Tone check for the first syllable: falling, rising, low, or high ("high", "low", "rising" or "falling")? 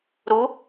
rising